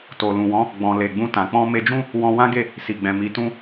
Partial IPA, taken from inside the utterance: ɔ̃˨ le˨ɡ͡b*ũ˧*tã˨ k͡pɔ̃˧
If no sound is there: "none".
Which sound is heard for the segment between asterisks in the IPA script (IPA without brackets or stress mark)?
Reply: ũ˧